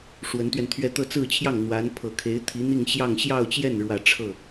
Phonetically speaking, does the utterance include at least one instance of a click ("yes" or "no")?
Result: no